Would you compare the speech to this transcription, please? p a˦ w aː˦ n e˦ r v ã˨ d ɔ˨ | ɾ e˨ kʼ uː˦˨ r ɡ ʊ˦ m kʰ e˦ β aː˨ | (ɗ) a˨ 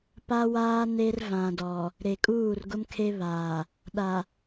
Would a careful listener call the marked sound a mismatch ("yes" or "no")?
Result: no